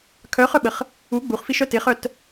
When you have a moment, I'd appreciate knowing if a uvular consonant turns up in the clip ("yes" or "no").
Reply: yes